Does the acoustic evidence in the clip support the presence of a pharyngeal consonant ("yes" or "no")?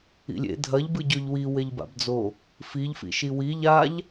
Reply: no